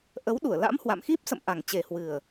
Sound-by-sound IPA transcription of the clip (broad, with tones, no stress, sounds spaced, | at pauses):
ʔ ə˨˦ w ɗ u˧˩ ə̯ l a̰˧˥ m h w a̰˧˨ m x i˦˥ p̚ s ə̰˧˨ m ʔ a˨˩ ŋ t͡ɕ e˨˩ h w ɨ˨˩ ə̯